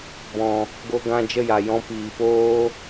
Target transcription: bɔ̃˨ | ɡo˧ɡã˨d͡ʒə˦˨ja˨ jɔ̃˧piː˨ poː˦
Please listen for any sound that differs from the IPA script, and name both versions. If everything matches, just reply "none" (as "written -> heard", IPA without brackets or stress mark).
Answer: ã˨ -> ã˧